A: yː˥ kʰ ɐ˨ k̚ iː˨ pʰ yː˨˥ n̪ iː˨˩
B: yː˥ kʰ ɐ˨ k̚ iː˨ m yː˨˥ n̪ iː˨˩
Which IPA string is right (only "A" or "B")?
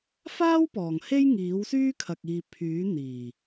A